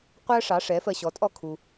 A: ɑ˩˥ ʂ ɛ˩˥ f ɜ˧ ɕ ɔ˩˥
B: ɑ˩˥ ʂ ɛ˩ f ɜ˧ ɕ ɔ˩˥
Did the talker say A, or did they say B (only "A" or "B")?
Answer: A